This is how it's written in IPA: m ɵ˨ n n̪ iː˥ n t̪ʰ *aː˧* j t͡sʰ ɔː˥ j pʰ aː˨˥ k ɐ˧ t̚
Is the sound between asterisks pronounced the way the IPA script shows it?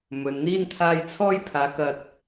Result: yes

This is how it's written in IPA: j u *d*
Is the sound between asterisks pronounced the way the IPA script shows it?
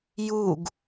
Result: no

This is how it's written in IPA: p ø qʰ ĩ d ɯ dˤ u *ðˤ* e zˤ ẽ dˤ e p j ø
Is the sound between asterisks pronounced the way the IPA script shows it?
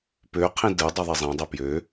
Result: yes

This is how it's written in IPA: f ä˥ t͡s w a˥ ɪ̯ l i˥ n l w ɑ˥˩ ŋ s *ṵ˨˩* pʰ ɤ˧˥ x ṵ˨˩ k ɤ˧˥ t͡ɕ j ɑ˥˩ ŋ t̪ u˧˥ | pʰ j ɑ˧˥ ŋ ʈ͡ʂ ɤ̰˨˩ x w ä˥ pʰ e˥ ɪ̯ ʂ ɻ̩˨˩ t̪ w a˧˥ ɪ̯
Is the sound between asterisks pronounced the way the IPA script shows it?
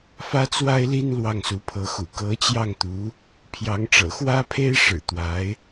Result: no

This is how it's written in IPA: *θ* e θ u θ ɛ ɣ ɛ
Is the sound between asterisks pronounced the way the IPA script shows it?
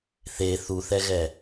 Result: yes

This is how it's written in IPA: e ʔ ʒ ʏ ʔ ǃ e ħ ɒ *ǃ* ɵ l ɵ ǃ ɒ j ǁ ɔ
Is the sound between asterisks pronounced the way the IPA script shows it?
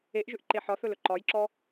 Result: no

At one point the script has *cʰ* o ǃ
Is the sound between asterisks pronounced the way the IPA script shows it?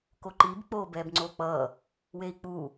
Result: no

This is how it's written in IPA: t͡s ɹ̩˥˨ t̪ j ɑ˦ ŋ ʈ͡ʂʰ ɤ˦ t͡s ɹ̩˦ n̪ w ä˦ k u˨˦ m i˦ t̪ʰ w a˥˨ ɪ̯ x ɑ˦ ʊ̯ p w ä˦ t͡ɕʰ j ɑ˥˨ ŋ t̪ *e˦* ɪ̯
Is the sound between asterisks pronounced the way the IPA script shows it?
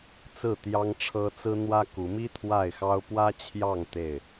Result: no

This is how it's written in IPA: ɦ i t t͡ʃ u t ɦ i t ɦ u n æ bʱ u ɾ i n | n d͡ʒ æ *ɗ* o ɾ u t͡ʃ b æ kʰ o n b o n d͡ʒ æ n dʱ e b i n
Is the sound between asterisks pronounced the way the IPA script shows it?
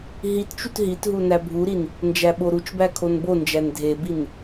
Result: no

